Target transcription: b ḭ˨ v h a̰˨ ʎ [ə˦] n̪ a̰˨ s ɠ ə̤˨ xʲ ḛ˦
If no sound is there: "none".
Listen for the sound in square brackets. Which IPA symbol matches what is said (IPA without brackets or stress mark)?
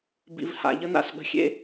ə˦